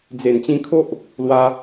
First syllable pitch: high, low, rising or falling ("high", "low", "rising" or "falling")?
low